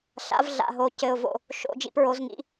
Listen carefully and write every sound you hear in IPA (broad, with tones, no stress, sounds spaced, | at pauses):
ɬ a̰˧˥ v ɮ a̰˧˥˧ ɦ o˧˥ c ɘ˧˥˧ ʊ̯ v o̰˥˧ | ʃ o̰˧˥˧ d͡ʒ ḭ˥˧ p ɹ o˧˥ z ŋ ḭ˧˥˧